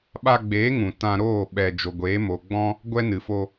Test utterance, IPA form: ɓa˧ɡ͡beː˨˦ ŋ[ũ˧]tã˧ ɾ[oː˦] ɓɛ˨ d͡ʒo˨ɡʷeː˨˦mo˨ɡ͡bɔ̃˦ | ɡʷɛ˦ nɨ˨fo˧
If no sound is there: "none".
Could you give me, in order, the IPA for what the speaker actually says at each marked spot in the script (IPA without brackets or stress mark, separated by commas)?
ũ˨, oː˦˨